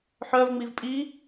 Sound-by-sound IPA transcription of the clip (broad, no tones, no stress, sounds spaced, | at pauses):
ħ œ v ŋ͡m i v pʼ i